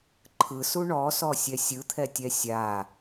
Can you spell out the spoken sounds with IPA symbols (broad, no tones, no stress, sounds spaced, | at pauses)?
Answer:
ǃʰ ɯ s u ɳ ɔ s ɔ sʲ ɛ sʲ ɯ t̪ʰ ɛ tʲ ɛ sʲ a